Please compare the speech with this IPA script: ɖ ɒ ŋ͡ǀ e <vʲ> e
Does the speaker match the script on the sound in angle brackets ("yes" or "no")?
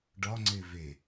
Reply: no